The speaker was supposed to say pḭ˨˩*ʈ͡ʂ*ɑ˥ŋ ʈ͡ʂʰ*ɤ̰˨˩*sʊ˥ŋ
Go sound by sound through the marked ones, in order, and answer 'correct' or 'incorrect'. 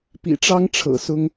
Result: correct, correct

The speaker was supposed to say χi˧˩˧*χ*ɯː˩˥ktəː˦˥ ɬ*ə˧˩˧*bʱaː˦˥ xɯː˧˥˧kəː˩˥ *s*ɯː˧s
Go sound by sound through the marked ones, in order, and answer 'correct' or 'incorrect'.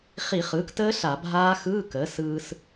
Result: correct, incorrect: a˧˩˧, correct

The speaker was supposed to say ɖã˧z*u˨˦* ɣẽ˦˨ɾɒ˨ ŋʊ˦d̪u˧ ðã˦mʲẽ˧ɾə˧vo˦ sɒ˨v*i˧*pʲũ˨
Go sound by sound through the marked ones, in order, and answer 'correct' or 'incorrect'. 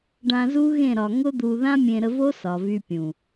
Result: incorrect: u˦, incorrect: y˧

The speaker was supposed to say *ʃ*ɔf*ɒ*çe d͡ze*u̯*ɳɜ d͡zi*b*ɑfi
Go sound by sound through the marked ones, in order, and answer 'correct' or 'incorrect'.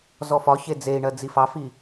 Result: incorrect: z, correct, incorrect: i̯, incorrect: f

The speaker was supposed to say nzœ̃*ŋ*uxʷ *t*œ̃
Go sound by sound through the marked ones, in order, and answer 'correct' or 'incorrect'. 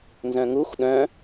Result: correct, incorrect: ɗ

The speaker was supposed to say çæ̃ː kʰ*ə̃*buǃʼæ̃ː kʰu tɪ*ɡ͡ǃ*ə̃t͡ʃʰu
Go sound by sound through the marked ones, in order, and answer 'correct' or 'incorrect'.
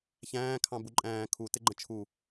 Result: incorrect: ɑ̃, correct

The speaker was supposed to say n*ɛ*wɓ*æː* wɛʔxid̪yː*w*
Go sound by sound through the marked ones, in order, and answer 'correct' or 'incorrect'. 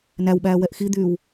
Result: incorrect: æ, correct, correct

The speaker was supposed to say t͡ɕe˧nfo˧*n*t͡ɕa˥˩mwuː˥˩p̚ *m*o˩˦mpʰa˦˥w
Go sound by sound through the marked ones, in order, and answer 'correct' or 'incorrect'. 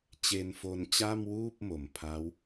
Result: correct, correct

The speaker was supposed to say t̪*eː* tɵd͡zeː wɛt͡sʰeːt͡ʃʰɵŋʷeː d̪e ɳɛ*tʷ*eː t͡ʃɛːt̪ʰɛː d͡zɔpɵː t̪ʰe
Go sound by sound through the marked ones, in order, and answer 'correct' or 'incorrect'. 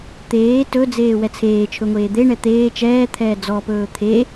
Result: correct, incorrect: t̪

